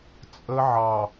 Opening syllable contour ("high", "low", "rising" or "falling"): high